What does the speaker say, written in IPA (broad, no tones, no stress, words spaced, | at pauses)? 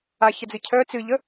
açəd͡zɨ cʰœ t͡sɨʎə